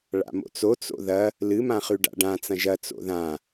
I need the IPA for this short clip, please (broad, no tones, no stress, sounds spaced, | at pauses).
ɭ a̰ m o̰ t͡s o t͡s o̰ ð ɐ | l ɨ m ã χ ʉ ɖ a̰ ɖ ã t͡s ɐ̃ ʒ ɐ t͡s o̰ ð ã